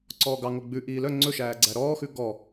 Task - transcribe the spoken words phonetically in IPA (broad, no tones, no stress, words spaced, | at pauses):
ǀɔːɡɑ ŋoɡ͡bʉ ʔiːlœ ŋ͡ǀɵʃæːɡ͡ǀæ ɾɔːxʉ ɡɔ